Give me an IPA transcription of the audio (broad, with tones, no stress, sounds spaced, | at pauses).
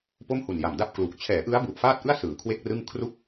p o˥˩ m h u˨˩ n j a˨˩ m d a˥˩ p̚ k l u˨˩ k̚ t͡ɕʰ ɛː˩˦ ʔ ɯ˦˥ a̯ b u˨˩ ʔ f aː˥˩ t̚ ʔ ɯ˥˩ a̯ s ɯː˩˦ kʰ w e˥˩ k̚ r ɯ˥˩ ŋ kʰ r u˥˩ k̚